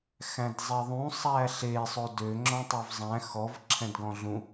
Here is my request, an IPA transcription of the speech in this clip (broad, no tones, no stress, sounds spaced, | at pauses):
x æ̃ d zˤ e ðˤ ũ sˤ æ ɬ e sˤ o d ø ŋ͡ǁ ɔ̃ tˤ ø v zˤ æ̃ x ɔ v ǁʰ ɛ̃ d ɡ ɔ̃ ɮ ũ